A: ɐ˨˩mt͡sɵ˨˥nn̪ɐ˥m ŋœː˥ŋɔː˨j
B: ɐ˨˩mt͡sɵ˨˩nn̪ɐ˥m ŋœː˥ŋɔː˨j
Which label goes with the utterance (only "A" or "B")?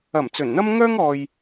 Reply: B